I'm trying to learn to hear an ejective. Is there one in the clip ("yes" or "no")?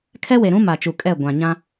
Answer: yes